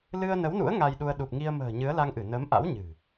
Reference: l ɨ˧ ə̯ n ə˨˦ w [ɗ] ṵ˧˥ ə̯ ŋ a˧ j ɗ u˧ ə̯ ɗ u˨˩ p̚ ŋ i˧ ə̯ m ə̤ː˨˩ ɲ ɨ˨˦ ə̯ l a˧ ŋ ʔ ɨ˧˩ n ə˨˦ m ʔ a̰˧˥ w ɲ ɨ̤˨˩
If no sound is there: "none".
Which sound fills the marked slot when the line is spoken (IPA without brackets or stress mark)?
n